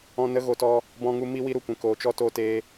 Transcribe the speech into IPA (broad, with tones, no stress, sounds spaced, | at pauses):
ɔ̃˦ n ə˦ ɣ o˧ t ɔ˧ | b ɔ̃˧ ŋ u˧ m i˧ w i˧ ɾ u˨ kʷ ɛ̃˨ k oː˨ t͡ʃ ɔ˧ t o˧ t eː˧